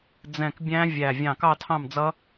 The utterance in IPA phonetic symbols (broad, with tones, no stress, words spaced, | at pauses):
d͡zɛ̃˧˩kbʲæ̃˦˥vʲæ˧˩ vʲɑ̃˧˩kɑ˥˨tʰɑ̃˥˨md͡zʌ˦˥